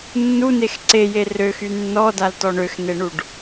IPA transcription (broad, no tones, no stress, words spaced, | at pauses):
nːunex ǀeje røxy nːɔdaltɔ ɳøxn̪eɳuɖ